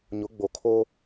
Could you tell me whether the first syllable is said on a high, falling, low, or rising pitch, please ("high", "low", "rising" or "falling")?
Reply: rising